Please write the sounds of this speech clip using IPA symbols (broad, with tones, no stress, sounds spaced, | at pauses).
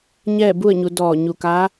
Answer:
ɲ ɛː˥˨ b u˥˨ ə̯ ɲ u˩˧ d ɔː˧˩ ɲ u˧˩ k aː˧˥